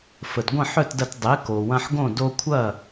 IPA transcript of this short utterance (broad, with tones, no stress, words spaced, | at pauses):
fə˩dɡʷə̃˥˩ħœ˥˩tdɐ˧t dˤe˩˥ko˩ wɐ̃˧ħɡõ˥˩ do˧kʷʰɐ˥˩